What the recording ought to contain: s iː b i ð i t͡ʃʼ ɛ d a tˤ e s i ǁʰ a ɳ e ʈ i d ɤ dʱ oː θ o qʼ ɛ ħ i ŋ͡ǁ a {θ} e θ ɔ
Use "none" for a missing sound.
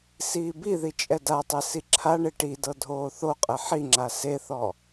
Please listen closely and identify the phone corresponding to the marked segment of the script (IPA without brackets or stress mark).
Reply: s